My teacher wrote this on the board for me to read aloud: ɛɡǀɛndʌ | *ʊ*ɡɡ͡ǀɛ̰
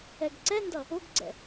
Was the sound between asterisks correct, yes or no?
yes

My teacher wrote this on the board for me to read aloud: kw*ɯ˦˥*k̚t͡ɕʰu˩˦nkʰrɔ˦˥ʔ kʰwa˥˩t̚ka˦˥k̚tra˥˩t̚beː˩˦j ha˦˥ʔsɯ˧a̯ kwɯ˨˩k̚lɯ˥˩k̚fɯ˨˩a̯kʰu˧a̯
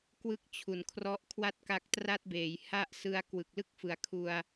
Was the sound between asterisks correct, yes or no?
yes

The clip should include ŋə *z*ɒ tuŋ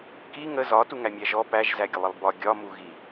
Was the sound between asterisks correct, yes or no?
yes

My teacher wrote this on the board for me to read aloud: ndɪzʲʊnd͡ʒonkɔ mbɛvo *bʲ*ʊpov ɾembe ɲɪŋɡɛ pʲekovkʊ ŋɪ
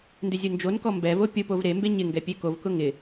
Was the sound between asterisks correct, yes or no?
no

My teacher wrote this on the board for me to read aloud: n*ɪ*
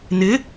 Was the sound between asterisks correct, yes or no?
yes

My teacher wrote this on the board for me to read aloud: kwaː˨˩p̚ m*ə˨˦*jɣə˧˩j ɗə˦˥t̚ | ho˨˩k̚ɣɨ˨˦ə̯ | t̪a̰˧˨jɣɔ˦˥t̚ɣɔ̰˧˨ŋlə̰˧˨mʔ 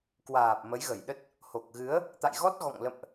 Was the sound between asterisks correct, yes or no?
yes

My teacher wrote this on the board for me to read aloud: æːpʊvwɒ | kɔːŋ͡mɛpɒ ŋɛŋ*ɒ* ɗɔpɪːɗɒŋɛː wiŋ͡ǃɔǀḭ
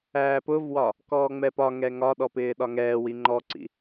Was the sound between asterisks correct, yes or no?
yes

